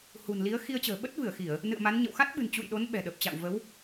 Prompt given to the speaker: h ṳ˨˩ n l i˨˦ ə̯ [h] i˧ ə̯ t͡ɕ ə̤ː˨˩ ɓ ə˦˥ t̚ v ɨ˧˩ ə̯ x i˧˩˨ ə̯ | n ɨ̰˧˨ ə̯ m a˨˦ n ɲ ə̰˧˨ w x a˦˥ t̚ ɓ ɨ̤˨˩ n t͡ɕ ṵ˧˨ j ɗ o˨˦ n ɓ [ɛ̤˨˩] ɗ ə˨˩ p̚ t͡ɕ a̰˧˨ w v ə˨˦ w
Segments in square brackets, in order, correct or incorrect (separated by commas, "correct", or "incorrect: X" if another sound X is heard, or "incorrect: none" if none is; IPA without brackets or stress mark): incorrect: x, correct